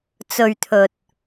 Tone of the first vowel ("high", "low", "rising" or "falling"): low